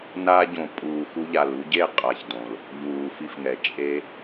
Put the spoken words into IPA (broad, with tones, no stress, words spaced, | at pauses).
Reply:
na˧ɟõ˨ pʼuː˨xu˧ʎa˨l u˧ɟe˦˨qʼa˨çdõ˨l | ʎuː˨fi˧fŋɛ˨ t͡ʃʼe˧